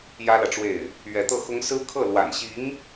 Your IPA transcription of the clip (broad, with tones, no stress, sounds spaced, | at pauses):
j ä˥ l ä˨ ʈ͡ʂ w e˥˩ ɪ̯ | ɥ ɛ˧˥ t̪ ɤ˥˩ x ʊ˥ ŋ s ɹ̩˥ kʰ ɤ˥˩ l w a̰˨˩ n ɕ i˧˥ ŋ